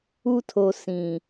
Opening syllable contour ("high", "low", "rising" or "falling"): high